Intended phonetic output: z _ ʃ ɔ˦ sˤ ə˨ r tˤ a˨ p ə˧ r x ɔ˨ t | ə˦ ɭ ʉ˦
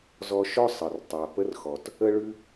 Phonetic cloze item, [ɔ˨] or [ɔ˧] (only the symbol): ɔ˧